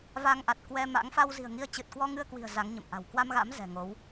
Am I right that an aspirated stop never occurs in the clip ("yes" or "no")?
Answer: yes